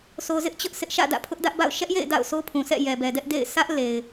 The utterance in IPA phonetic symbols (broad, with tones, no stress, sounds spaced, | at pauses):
sʰ o˨ z ɪ˦ ʔ t͡ɕ ʊ˦ ʔ sʰ ɪ˦ ʔ ʃ ä̰˦˨ d ä̰˦˨ pʰ ʊ˦ ʔ d ä˦ ʔ b a̰˦˨ ʊ̯ ʃ ɛ˦ ʔ j ḛ˦˨ ɪ̯ d a̰˦˨ ʊ̯ s o˦ pʰ ũ˨ s ɛ̰˦˨ j ɛ˨ b ɛ˨ d ɛ˦ ʔ d ḛ˦˨ ɪ̯ sʰ ä˦ ʔ l e˨ ɪ̯